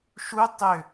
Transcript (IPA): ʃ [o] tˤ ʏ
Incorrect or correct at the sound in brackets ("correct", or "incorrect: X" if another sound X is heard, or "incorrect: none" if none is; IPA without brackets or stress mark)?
incorrect: u